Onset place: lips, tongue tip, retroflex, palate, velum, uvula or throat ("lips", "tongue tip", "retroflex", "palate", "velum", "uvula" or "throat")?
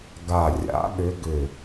velum